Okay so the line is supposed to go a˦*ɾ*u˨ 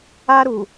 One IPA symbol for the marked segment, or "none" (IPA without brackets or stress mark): ɾ